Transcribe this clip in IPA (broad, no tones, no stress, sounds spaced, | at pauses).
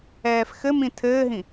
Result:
ɛː f x ɘ m ĩ tʰ ɘː ɦ ĩ